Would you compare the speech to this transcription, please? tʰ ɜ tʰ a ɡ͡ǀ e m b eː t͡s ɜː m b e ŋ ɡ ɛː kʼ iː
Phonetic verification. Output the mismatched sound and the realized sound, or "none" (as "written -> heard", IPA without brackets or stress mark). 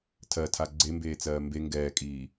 none